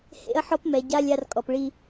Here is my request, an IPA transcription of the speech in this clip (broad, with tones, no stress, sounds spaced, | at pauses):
h ḛ˦ ɐ̯ ħ ɔ˦ p m ɛ˨ ɟ a˦ lʲ a˦ r kʼ ɔ˨ p ɭ i˦